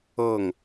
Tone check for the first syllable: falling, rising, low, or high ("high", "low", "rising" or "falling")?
falling